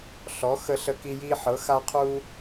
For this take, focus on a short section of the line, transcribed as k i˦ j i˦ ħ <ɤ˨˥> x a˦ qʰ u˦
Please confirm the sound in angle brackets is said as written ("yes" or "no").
yes